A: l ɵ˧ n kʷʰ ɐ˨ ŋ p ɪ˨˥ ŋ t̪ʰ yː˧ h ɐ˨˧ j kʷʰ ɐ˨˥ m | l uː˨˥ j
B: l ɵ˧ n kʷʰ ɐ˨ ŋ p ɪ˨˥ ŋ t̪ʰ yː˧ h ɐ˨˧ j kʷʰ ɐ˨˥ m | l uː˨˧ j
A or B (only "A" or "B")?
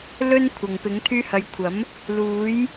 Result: A